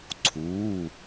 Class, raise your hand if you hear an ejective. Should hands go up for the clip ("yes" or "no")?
no